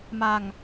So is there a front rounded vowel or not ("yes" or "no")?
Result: no